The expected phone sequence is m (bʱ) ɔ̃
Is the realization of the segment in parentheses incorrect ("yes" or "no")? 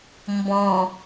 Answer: yes